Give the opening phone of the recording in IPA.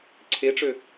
ǀʰ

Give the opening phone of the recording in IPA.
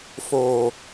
f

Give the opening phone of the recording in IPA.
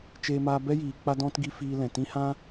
t͡ʃ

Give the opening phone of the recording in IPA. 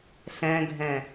ɬ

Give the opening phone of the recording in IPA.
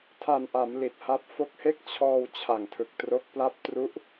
tʰ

